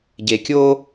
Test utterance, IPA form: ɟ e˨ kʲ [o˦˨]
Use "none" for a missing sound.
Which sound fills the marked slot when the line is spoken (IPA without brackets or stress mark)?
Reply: o˦